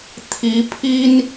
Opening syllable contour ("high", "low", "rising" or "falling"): rising